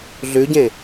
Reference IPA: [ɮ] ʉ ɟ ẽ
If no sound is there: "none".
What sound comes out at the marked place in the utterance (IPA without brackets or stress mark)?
ɮ